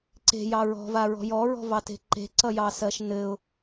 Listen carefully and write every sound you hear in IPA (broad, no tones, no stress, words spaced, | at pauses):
ǀe̤jɑ ɹɔ̤vaɹɔ̤ jɔɹɔ̤vɑte̤ ǃe̤ǀʌjɑsɜʃ nɘʊ̯